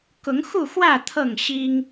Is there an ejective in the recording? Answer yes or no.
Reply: no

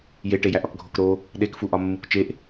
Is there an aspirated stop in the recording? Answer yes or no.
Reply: no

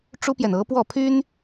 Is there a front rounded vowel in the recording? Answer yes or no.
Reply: yes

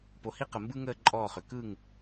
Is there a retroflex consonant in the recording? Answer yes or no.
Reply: no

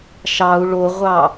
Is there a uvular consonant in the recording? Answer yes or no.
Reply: yes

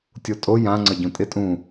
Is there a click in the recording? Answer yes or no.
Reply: yes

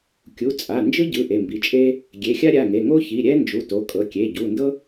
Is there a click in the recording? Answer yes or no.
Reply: no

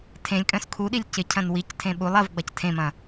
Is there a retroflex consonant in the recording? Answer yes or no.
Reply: no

